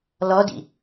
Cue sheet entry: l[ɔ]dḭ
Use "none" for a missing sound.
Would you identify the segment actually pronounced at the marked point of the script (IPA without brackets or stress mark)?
ɔ